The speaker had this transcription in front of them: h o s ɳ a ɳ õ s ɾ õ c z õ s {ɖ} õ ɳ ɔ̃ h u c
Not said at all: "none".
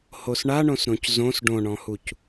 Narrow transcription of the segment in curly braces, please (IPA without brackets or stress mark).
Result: ɖ